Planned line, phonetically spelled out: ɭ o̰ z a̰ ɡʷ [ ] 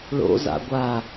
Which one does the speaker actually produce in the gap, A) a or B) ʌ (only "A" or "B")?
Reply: A